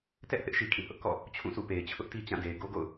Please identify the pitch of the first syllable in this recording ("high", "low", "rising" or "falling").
high